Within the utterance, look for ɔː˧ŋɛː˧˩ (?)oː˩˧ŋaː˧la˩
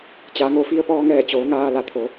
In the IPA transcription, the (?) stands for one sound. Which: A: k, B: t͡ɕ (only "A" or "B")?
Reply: B